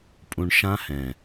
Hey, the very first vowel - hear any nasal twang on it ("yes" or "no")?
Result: yes